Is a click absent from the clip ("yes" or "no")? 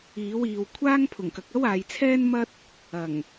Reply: yes